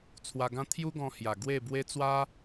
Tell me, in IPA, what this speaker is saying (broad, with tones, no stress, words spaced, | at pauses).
t͡sʰwa˧ɡã˦ t̪ʰju˦ɡɔ̃˧hja˨˩ ɡwe˥˧ bwe˦t͡swa˦